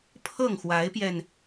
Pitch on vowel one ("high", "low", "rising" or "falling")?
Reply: falling